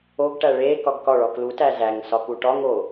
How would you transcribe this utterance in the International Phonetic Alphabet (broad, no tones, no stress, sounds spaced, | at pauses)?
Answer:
o ɡ ʈ æ ɭ e k ɒ ɡ k ɒ ɭ ɒ k l u t æ z æ ŋ s ɒ k u ʈ ɒ ŋ o